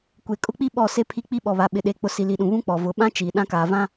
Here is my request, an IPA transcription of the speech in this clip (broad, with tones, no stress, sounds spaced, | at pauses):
kʷ e˨ kʼ ʊ˦ k͡p i˦ ɓ ɔ˦˨ s e˦ pʰ i˦ k͡p i˦ ɓ ɔ˨ β a˨ ɓ ɪ˨ ɗ e˨˦ k͡p ʊ˨ s i˨ l i˨ ɗ ũ˨ β ũ˦ k͡p ɔ˨ v ʊ˨˦ ɓ ã˦ t͡ʃ iː˨ ɗ ã˦ k aː˨ v ã˦